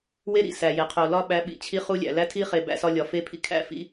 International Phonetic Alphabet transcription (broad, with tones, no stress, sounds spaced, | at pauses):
w e˦ ɾ ḭ˨ s æ˨ j e˨ qʰ o˨ l ɒ˦ ɓ æ˨˦ ɓ ḭ˨ t͡ɕʰ i˦ χ u˦ lʲ æ̰˨ l æ˦ tʰ i˦ χ e˨ b æ̰˦ s ɒ˦ lʲ ɒ˨ f e˦ pʰ ḭ˦ kʰ æ̰˦ f ḭ˦